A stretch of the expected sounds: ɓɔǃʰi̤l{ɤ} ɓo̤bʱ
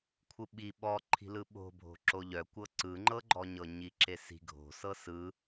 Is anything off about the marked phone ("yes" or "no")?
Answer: yes